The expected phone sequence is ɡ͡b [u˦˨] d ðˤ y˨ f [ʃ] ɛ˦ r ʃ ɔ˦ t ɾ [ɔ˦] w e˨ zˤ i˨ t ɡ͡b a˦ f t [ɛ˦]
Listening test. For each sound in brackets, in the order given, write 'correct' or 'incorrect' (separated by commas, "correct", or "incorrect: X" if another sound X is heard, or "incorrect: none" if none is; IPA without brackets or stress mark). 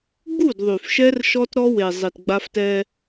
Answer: correct, correct, correct, correct